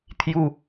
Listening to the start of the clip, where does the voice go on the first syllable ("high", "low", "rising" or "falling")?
high